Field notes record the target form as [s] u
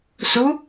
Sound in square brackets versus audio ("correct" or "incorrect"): correct